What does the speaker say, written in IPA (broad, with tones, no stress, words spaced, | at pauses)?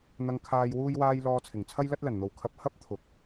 n̪ɐ˧ŋkʰaː˧j wuː˥jwaː˥j lɔː˧t͡sʰɪ˨˩ŋt͡sʰɐ˥j lɐ˥t̚lɐ˨˩nn̪o˨˧wkʰɐ˧p̚ hɐ˥p̚ t̪ʰʊ˨k̚